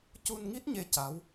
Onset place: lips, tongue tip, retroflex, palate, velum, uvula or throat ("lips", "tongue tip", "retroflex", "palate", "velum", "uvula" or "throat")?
palate